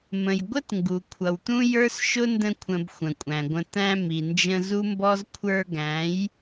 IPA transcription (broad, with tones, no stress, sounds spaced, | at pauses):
m ə̃˨ j ɡʷ ə˦ t ŋ ɡ u˨ kʷʰ ʌ˨ w t̪ ũ˦ j ə˞˦ s ʃ ʊ˦ n d ə̃˧ kʷʰ ə̃˨ b xʷ ə̃˨ kʷʼ æ̃˨ ɡʷ ə̃˧ t̪ æ̃˧ m i˨ n d͡ʒ ə̃˧ z u˦ m b ɔ˦ z kʷʰ ə˞˧ ɡ æ̃˨˦ j